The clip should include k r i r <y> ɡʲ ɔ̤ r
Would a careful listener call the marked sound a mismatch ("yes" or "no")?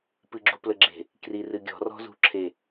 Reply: yes